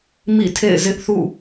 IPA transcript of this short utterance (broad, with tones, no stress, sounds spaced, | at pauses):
m ḭ˦˨ tʰ ḛ˦˨ ɪ̯ z ɪ˦ ʔ θ ṵ˦˨